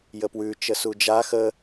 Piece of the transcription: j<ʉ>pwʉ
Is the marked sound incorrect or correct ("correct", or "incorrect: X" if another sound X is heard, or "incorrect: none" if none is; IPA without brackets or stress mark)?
incorrect: ə